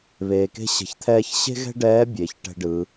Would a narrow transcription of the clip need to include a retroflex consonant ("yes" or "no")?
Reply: yes